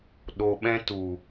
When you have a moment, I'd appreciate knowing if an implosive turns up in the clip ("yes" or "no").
yes